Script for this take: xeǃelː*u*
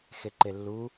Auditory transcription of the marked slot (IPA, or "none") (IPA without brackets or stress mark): u